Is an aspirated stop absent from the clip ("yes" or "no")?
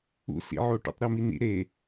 yes